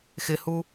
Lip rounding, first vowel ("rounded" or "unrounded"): unrounded